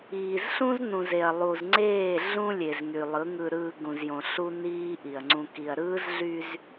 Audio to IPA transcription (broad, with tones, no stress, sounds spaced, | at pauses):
iː˨ z ɬ ũ˦ z n ũ˨ z e˨ ɐ̯ lˠ u˨ z ŋ͡ǀ eː˦˨ ɮ ũ˦ lʲ e˨ z ŋ y˨ lˠ ɯ˨˦ ŋ ɯ˨ ɾ ɯː˨ ɡ ũ˨ z j õ˨ ɬ u˦ n iː˦ ʔ i˨ ɐ̯ ŋ͡ǀ ũ˨ k i˨ ɐ̯ ɾ ɯː˦ z ɮ y˦ z